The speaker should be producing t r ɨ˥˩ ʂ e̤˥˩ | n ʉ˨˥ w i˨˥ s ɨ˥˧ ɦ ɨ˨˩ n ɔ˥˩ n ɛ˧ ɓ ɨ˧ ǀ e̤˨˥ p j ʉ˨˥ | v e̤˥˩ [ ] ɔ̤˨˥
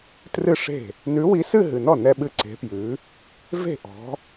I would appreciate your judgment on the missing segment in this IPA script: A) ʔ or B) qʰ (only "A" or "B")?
A